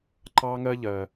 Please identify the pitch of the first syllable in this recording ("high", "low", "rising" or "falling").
high